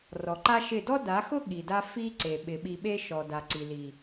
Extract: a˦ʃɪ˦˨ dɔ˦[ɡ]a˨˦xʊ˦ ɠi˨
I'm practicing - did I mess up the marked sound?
yes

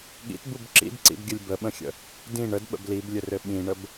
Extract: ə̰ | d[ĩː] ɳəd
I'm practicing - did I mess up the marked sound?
yes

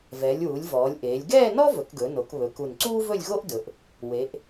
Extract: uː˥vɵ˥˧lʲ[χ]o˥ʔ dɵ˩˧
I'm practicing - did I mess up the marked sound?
yes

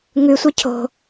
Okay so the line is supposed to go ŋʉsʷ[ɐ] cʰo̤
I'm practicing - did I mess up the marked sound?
no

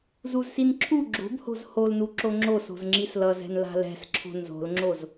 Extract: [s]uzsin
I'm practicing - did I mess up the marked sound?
yes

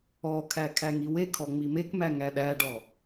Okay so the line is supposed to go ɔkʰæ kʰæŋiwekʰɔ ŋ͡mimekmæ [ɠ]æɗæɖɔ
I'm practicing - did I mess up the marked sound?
yes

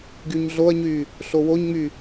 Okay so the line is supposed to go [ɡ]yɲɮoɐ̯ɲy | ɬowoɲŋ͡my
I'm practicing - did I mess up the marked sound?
no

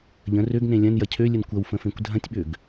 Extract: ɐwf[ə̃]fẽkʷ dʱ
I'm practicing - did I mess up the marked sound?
no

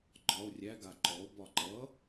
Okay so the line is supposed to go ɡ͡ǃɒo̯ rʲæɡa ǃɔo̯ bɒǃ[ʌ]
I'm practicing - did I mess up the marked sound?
no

